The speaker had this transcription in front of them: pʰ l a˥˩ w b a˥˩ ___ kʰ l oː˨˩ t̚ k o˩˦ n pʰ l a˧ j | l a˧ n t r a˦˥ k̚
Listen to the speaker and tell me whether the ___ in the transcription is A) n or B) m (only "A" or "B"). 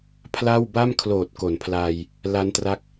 B